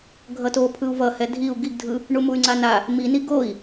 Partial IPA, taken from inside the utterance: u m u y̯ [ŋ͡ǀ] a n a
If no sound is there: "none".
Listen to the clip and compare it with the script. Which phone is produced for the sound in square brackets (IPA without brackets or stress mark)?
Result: ŋ͡ǀ